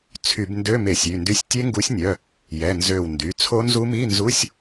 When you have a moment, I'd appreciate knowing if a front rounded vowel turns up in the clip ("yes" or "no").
yes